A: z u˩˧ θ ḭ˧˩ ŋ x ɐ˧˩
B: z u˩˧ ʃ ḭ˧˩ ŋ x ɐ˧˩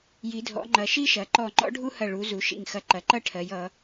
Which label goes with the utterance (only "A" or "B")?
B